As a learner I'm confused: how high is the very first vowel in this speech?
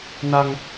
low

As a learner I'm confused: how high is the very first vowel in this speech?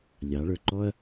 low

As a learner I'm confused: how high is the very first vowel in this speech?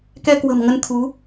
mid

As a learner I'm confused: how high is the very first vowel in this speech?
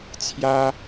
low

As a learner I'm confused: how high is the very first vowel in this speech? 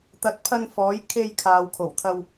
low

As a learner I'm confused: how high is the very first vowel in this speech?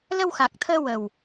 mid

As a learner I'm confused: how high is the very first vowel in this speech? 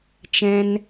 mid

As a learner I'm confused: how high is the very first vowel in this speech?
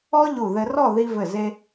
mid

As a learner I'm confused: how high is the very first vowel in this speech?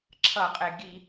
mid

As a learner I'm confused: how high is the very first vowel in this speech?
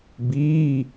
high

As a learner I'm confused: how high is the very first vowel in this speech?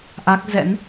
low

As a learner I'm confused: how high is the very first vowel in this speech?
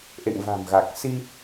mid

